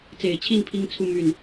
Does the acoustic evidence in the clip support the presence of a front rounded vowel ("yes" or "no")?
yes